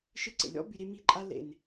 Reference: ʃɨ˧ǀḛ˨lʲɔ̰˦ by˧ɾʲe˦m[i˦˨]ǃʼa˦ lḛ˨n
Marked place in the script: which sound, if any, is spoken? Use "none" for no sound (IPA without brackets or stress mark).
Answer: i˦˨